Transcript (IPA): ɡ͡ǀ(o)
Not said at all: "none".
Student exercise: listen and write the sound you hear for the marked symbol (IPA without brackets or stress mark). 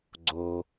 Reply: o